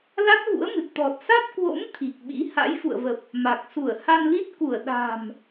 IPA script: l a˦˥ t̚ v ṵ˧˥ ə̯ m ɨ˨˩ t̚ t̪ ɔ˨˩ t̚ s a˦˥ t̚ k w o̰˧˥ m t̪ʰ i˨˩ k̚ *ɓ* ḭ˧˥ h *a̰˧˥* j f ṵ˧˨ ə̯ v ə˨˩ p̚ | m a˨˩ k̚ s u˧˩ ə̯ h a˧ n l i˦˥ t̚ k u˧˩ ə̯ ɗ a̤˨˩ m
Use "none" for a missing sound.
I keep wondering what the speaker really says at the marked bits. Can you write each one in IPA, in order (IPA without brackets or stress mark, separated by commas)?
ɓ, a̰˧˥